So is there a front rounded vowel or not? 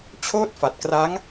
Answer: no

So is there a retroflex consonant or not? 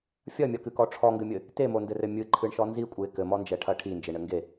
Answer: yes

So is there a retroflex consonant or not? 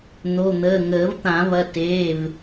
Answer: no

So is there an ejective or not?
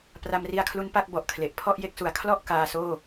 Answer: no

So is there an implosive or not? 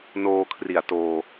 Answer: no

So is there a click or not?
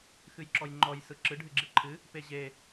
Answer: yes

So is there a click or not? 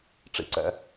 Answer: yes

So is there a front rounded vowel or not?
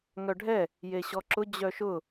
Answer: yes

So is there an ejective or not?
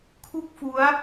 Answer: no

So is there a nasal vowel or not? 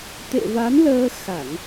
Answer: no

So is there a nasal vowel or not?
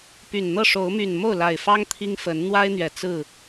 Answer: no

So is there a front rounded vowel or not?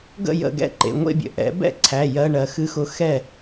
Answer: no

